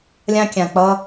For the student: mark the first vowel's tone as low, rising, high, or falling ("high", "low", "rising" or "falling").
high